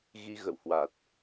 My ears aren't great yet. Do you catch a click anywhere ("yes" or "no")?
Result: no